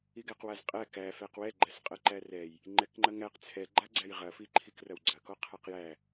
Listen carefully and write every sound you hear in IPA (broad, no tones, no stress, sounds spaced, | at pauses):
i ɡ æ q w a z qʼ æ k æ f æ q w ɛ ɡ͡ǃ æ s qʼ ɐ ǃ æ r ɛ j | ŋ͡ǃ ɛ k ŋ͡ǃ ɐ ŋ æ q t͡sʰ ɛ ɡ͡ǃ a ɡ͡ǀ æ j ʁ ɐ f i ǃʰ i k r ɐ w ɡ͡ǀ ɐ k ɔ qʰ a q j æ